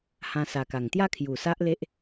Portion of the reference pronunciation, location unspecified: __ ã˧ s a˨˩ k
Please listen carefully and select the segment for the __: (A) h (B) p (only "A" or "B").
A